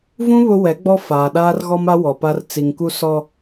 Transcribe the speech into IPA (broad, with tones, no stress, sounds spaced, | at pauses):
v ũ˦ β ʊ˦ w ɛ˨˦ ɡ͡b ɔ˦ f aː˨ ɗ aː˦ r ɣ ɔ˦ m a˦ w ɔ˨ p a˦ r t͡s i˨ ŋ k u˦ s ɔ˦